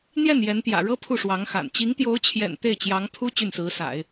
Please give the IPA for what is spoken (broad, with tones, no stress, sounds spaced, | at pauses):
n̪ j ɛ˥˩ n j ɛ˧˥ n t̪ j ä̰˨˩ ɻ ɤ˥ pʰ u˥˩ ʂ w ɑ˧˥ ŋ x a̰˨˩ n t͡ɕ i˧˥ ŋ t̪ j o˧˥ ʊ̯ t͡ɕʰ j ɛ̰˨˩ n t̪ e˥˩ ɪ̯ t͡ɕ j ɑ˧˥ ŋ pʰ u˥ t͡ɕ y˥˩ n s ɹ̩˧˥ s a̰˨˩˦ ɪ̯